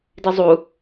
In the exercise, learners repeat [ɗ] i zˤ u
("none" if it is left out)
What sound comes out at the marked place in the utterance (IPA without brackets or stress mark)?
d